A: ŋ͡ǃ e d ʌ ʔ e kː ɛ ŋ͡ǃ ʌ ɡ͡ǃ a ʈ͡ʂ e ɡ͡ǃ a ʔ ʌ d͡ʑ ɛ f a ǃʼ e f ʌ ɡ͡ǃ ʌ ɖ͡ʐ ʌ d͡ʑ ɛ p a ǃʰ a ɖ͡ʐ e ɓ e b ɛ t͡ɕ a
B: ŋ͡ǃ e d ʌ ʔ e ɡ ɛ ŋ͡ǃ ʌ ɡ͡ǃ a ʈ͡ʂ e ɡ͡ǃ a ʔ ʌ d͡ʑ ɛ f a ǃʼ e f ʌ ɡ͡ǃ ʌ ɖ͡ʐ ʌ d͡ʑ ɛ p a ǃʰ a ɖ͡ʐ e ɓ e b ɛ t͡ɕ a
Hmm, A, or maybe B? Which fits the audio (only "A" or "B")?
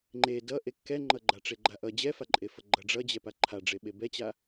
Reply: A